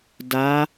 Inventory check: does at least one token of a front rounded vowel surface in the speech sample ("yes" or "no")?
no